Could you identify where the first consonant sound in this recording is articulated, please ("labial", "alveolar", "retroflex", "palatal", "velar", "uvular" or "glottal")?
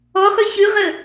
uvular